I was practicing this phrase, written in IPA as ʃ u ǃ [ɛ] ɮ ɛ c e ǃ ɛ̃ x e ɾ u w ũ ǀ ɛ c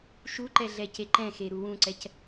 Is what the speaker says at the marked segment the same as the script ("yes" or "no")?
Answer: yes